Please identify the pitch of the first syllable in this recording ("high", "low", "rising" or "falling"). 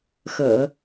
low